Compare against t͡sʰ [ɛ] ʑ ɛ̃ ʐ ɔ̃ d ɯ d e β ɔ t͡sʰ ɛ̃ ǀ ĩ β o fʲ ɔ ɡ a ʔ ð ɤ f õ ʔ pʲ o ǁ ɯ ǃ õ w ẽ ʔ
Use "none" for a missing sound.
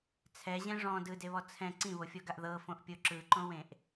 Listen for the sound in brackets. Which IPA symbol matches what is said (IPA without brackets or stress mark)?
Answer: ɛ